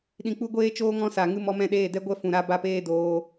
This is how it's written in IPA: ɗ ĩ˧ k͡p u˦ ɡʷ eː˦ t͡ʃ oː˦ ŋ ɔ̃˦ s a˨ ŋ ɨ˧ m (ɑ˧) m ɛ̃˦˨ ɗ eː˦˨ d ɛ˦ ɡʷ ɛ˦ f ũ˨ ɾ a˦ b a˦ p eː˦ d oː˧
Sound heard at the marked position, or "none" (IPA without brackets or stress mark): ɔ˧